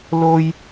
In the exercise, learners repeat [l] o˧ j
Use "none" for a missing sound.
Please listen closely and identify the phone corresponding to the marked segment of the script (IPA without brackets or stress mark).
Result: l